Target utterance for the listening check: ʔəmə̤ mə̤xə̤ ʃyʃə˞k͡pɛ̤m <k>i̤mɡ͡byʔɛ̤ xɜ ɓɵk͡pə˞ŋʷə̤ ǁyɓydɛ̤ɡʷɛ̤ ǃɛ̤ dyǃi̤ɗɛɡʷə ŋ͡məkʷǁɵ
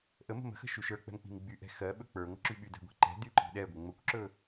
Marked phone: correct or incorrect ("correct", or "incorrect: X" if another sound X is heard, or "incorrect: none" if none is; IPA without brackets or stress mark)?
incorrect: k͡p